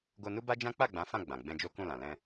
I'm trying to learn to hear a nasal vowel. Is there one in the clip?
yes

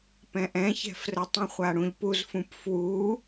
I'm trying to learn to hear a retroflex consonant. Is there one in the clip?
yes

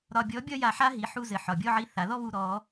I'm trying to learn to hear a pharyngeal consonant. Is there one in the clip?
yes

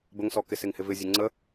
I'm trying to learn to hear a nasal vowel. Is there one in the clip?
no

